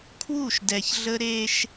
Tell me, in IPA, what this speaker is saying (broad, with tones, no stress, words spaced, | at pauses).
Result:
kʰwu˦˨ʃdɛ˨çɮə˦ ɾe˦ʃ